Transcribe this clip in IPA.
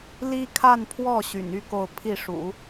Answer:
l i˥ kʰ a˥˧ n pʰ w ɔ˥˩ ɕ y̰˨˩ n y˥ k o˥˧ ʊ̯ pʰ i˥˩ ʂ ṵ˨˩˦

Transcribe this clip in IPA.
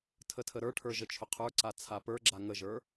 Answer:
tʰ ə tʰ ə ɾ ə˞ ʈʰ ə˞ ʒ ə t͡ʃʰ ʊ qʰ ə˞ ǀ a t͡sʰ a p ə˞ ɡ͡ǁ a ŋ ə ʒ ə˞

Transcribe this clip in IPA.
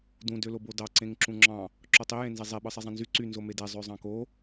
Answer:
d ũ d ø l o b o d ɑ ǀ ẽ ŋ ǁ ũ ŋ͡ǁ ɑ̃ | ǁ o tˤ i j ẽ n z e zˤ e ɓ ɯ sˤ e zˤ ẽ n z y ǀ y n z o m e d e zˤ ø zˤ ɑ̃ k o

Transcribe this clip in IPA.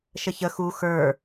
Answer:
ʃ ə ç ə x u x ə˞

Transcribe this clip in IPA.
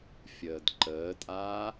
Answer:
fʲ əː d ǃ əː tʼ aː

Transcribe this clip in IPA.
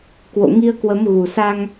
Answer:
k w o̰˧˨ ŋ i˧ ə̯ k w ə˨˦ m ɣ u˨˩ s a˧ ŋ

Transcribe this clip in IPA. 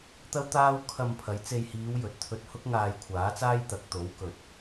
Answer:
t̪ ɐ˥ w t̪ aː˥ w kʰ ɐ˧ m pʰ ɐ˨˧ j t͡s e˧ j h iː˨˧ w j ɵ˨ t̚ t̪ʰ ɵ˧ t̚ h ʊ˥ k̚ ŋ aː˧ j kʷʰ aː˨˥ t͡s aː˥ j t̪ ɐ˧ k̚ t̪ o˨˥ w k ɵ˨ t̚

